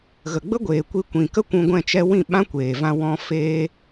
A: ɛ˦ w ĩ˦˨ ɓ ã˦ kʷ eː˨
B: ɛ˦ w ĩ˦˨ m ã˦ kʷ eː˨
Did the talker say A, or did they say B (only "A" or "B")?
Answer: A